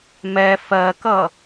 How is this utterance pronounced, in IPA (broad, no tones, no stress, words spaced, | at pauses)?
mɛ fɜkʌ